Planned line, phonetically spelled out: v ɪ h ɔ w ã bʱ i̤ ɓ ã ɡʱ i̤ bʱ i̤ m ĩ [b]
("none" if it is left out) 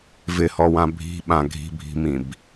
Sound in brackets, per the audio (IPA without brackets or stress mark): b